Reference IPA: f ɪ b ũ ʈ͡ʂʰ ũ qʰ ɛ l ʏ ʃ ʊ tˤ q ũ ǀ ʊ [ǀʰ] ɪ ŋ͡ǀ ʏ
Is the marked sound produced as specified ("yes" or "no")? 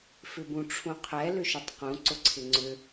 yes